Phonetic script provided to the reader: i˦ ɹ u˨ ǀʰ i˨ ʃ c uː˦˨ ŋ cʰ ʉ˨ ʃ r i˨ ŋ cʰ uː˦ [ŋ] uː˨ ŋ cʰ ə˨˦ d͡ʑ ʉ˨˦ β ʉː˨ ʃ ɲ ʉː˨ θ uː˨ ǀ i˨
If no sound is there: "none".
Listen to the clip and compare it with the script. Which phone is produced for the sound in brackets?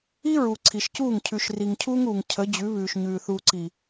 ŋ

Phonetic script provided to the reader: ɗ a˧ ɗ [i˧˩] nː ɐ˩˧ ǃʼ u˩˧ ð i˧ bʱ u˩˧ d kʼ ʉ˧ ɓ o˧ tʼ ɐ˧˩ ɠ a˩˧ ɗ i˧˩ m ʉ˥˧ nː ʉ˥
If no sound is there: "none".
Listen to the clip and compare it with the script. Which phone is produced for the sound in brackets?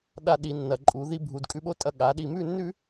i˩˧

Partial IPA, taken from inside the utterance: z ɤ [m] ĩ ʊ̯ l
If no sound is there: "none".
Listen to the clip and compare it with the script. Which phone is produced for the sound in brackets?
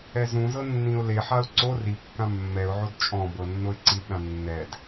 nː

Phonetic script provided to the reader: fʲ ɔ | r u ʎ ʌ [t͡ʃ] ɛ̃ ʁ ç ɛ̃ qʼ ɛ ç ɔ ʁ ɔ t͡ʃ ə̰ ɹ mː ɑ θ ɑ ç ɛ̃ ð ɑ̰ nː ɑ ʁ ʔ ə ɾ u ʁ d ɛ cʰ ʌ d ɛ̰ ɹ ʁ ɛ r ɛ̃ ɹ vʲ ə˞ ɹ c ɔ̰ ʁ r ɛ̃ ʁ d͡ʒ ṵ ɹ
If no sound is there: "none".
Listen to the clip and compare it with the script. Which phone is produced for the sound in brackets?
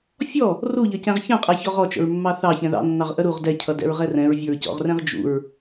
c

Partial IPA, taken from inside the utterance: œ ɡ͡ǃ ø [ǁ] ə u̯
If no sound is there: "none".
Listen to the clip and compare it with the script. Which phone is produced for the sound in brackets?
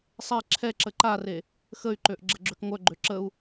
ǁ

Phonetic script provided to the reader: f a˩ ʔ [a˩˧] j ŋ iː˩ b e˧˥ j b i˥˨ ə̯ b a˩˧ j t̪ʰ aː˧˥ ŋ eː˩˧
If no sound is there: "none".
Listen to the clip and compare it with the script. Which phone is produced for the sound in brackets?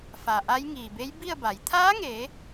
a˧˥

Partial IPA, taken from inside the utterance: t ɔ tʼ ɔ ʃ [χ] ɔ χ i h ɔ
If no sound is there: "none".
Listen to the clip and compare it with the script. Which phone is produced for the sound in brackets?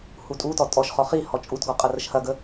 χ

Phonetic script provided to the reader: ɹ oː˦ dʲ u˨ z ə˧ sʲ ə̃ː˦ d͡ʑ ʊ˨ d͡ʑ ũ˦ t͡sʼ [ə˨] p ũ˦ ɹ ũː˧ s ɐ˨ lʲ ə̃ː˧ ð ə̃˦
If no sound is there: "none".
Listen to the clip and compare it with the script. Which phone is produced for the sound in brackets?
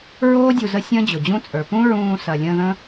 ə˞˨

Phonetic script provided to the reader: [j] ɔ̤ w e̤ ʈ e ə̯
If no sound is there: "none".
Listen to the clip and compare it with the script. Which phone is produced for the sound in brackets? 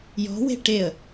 j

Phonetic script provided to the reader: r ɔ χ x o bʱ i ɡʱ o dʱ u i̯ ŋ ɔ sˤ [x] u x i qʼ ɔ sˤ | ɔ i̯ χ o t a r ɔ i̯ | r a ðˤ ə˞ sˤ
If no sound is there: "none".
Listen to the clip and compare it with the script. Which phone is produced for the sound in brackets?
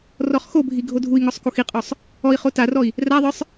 k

